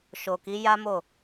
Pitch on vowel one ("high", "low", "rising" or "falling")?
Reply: low